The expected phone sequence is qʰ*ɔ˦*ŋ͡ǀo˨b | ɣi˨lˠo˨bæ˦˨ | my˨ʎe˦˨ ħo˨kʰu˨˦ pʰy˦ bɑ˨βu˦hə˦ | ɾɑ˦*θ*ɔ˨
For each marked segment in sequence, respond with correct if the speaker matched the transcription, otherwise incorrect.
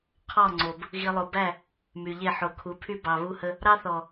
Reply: incorrect: ɔ˦˨, correct

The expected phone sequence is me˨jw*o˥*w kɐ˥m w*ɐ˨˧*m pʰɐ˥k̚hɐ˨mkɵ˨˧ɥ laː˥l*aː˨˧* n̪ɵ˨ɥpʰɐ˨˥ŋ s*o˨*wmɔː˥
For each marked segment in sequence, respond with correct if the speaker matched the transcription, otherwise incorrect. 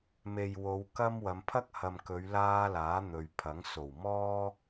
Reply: incorrect: o˨˧, correct, incorrect: aː˨˥, incorrect: o˨˩

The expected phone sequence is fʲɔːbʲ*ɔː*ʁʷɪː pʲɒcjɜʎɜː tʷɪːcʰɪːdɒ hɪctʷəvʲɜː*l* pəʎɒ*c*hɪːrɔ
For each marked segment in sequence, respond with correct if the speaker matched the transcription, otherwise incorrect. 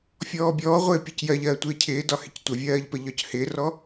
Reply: correct, incorrect: ʎ, correct

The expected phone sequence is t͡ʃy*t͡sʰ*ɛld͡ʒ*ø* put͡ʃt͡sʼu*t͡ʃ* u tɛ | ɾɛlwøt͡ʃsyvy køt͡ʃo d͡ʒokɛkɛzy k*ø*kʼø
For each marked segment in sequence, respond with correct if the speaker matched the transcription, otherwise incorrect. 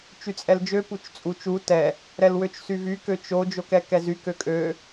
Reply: incorrect: t͡sʼ, correct, correct, correct

